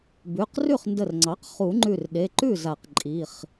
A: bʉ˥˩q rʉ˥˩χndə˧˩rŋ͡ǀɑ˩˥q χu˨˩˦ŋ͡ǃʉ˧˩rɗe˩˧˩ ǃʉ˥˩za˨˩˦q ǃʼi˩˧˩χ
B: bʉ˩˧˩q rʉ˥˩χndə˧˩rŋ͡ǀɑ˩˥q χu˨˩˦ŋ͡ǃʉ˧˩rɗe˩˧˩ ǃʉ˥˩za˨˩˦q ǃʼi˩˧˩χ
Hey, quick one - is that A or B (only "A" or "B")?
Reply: B